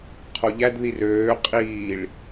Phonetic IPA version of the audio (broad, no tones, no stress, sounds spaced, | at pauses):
qʰ o ʎ æ d ð i r øː qʼ iː ɭ